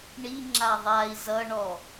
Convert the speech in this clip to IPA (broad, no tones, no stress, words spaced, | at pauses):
ɳiŋ͡ǁa ðˤai̯ zʌɳɔ